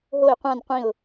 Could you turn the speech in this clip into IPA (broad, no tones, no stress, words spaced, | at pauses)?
ɦoɪ̯ qʷãn qʷĩʊ̯